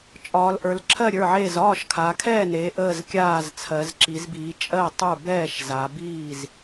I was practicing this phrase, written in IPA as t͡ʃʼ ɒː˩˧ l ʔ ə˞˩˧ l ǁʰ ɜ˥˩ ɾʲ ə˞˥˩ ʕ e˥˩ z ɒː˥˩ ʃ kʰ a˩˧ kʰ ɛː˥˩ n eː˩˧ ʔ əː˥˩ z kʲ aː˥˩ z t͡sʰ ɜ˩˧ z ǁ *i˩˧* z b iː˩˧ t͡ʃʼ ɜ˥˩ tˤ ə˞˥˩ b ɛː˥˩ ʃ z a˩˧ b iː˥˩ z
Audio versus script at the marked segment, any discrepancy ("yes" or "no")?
no